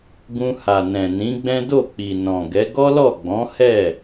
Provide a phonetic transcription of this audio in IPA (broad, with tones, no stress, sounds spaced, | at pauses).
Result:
ɡ ũ˧ h a˨ n ɛ̃˨ n ĩ˨˦ ɡ͡b ɛ̃˦ d o˦˨ k͡p i˨ n ɔ̃˨ ɡ ɛ˨˦ ɡ ɔ˦ l ɔ˦˨ ɡ͡b ɔ̃˨˦ h ɛ˦˨